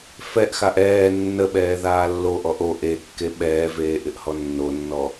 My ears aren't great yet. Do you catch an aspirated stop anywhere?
no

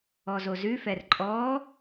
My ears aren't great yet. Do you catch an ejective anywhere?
yes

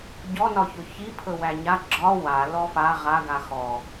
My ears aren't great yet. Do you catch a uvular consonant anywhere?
yes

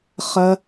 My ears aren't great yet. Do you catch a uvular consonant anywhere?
yes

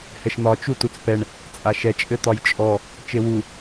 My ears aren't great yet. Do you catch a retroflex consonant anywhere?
yes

